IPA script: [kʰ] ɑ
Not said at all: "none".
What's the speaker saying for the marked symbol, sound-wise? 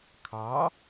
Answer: kʰ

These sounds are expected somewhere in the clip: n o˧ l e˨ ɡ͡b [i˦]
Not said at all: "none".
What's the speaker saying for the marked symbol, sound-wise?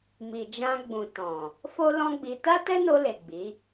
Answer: i˨˦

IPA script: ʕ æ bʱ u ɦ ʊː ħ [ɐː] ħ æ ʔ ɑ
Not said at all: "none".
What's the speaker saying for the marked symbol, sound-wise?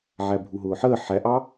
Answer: əː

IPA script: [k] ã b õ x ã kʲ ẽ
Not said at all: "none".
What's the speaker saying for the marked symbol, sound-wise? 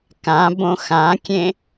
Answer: k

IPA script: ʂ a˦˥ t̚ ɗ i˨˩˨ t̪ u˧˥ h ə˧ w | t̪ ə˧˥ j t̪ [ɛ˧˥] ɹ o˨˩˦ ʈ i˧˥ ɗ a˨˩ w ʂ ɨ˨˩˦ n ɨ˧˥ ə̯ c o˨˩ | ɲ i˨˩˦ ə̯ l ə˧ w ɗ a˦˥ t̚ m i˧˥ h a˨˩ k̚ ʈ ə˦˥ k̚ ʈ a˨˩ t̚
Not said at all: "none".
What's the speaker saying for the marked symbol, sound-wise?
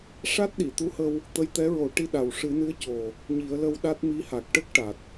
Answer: ɛ˧˥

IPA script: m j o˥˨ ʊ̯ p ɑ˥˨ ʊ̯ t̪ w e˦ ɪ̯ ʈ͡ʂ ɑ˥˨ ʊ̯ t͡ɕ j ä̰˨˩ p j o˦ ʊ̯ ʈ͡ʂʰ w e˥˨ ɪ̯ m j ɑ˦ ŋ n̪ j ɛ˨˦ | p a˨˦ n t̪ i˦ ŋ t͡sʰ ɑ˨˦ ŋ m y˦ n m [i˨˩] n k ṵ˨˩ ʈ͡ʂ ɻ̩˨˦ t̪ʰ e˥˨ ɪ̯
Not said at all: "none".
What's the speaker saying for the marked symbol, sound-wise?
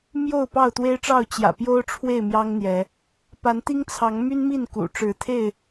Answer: i˥˨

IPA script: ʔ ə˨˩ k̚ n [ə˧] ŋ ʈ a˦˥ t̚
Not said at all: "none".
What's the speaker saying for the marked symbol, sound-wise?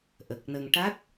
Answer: ə˧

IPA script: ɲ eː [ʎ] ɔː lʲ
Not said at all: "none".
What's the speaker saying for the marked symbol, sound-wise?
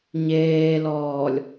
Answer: l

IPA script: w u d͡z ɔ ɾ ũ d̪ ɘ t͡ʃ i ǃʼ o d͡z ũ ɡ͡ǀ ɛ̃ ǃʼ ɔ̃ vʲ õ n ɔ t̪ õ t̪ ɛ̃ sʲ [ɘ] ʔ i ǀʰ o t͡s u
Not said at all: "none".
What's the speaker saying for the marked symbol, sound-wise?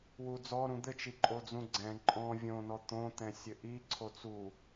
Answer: ɘ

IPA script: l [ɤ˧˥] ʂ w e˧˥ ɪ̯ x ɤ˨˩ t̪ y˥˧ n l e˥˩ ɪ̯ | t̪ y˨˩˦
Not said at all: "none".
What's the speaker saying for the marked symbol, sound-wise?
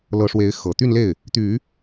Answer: ɤ˧˥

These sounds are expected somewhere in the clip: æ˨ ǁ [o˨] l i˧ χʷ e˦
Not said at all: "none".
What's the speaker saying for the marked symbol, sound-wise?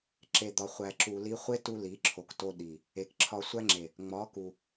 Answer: u˨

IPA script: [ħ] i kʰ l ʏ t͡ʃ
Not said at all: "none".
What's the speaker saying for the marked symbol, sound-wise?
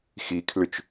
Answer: x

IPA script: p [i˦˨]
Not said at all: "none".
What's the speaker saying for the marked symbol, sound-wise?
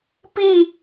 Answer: i˦˨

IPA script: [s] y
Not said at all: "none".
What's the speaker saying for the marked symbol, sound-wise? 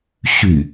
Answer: ɕ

